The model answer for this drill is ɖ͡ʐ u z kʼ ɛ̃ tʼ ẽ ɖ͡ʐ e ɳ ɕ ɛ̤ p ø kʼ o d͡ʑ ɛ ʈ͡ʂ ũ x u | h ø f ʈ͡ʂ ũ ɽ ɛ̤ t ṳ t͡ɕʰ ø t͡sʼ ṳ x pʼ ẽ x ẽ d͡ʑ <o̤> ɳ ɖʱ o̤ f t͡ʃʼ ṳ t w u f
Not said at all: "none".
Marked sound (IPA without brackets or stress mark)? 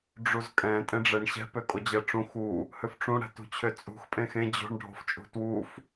o̤